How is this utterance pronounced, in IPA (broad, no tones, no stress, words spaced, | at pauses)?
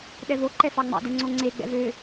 ɗɛvo ǃɛfɑŋ͡mɑ̰dɛ ŋ͡ǀoŋ͡ǀe ɡ͡bɛ̰vø